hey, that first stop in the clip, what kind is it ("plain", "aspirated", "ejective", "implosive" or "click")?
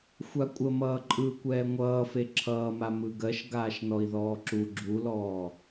ejective